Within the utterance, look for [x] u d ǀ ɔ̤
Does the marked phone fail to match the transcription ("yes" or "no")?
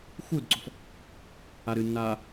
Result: no